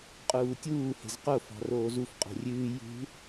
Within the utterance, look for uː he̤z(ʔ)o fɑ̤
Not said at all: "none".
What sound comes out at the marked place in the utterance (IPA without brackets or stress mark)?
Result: q